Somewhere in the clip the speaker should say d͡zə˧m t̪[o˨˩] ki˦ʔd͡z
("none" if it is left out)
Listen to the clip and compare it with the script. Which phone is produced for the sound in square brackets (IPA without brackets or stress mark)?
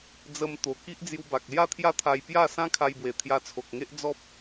o˨˩